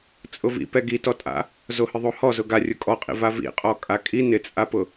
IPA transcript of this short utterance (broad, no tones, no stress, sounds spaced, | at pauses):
t͡sʼ ʊ v ḭ p ɛ ɡ i t ɔ tʼ a̰ | z o h ɪ ðˤ o h ɔ z ʊ ɡ a rʲ ʊ kʼ ɔ qʼ ḭ v a v ḭ qʼ ɔ kʼ a kʼ i n ɪ t͡sʼ a p ʊ